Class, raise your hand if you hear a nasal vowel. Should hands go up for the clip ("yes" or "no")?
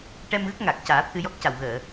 no